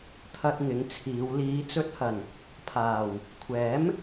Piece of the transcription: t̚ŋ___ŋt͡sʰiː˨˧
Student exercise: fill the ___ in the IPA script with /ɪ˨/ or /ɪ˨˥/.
ɪ˨˥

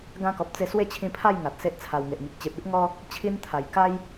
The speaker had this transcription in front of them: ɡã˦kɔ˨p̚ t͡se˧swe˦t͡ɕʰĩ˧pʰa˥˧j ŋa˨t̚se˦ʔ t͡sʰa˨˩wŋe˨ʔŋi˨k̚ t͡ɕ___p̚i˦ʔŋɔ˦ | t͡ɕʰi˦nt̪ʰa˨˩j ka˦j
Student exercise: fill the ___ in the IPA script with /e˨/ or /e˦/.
e˨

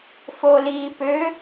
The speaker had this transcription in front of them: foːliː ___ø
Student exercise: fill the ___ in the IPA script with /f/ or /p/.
p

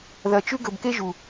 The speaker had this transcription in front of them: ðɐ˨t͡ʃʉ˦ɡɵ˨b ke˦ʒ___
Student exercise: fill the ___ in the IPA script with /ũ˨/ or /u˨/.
u˨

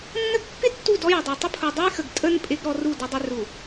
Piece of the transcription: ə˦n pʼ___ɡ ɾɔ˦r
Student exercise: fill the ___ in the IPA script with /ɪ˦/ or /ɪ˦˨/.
ɪ˦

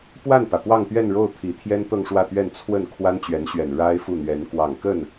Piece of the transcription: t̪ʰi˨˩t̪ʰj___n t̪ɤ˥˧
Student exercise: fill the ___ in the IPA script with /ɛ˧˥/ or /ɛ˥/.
ɛ˥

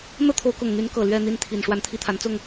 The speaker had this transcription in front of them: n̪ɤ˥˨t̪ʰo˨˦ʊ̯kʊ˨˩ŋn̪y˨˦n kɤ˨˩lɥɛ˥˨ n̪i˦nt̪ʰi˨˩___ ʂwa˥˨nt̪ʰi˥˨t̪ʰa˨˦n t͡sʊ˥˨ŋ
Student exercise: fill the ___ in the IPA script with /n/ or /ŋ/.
n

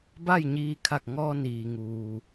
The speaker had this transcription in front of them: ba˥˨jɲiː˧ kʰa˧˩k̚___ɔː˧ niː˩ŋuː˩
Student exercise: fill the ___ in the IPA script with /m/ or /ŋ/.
ŋ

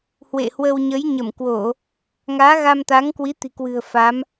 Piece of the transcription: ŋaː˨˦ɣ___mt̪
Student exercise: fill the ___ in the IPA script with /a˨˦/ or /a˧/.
a˧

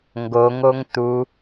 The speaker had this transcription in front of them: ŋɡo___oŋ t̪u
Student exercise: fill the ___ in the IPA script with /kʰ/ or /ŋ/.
ŋ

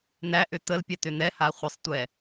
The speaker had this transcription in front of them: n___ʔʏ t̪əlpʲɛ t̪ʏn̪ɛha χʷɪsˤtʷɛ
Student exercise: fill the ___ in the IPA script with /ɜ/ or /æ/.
æ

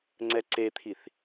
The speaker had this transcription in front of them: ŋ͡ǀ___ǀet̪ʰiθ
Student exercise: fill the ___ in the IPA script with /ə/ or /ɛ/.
ɛ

